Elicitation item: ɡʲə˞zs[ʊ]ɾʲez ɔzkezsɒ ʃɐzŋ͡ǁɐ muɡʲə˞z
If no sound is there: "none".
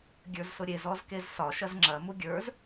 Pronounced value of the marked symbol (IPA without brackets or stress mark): ʊ